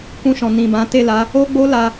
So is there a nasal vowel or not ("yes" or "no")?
yes